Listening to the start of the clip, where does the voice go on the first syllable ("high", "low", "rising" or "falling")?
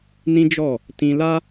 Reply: high